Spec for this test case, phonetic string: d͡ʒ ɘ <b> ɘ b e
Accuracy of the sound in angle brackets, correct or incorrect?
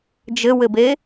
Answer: incorrect